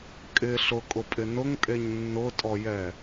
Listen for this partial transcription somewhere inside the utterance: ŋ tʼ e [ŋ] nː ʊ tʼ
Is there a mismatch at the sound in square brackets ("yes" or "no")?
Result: yes